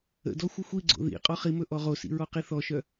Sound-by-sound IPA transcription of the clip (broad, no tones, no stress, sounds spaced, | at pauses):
ə̰ d ɔ xʷ ə xʷ i ɡ͡ǀ o̰ ð ḭ qʼ ɔ χ i m ɵ ʔ ɔ ʁ o s ḭ ɹ ɔ q i θ ɔ ʃ œ